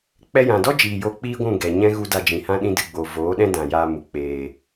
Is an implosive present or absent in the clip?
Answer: present